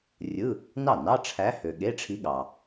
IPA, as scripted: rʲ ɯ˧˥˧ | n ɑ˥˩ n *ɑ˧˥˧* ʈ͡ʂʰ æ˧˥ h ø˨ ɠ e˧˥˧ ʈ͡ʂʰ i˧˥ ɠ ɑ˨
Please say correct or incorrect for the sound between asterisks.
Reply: correct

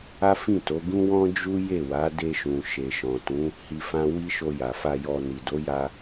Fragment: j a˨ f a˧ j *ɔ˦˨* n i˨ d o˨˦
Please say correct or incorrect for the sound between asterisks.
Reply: incorrect: ɔ˧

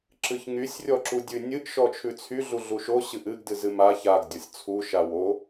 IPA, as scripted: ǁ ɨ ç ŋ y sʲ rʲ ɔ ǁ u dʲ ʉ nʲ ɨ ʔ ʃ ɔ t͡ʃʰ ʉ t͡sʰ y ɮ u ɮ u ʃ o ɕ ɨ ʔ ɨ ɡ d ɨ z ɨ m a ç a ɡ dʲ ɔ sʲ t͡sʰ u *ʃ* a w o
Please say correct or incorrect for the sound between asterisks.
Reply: correct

